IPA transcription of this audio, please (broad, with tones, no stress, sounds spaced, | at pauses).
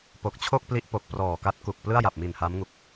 p o˨˩ k̚ t͡ɕʰ o˥˩ k̚ p l i˦˥ ʔ p o˨˩ k̚ p r ɔː˨˩ k a˦˥ t̚ k u˨˩ k̚ p l ɯ˥˩ a̯ j a˨˩ p̚ m i˨˩ n h a˦˥ m ŋ u˨˩ k̚